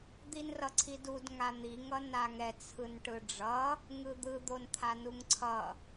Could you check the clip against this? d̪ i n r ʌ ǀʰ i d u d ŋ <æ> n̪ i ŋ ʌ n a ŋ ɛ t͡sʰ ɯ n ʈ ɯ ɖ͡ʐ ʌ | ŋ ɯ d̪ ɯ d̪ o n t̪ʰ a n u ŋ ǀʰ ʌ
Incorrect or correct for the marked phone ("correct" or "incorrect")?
incorrect